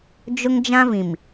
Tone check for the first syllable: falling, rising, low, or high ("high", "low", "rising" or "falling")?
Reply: high